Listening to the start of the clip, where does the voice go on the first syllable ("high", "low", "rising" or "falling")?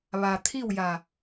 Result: low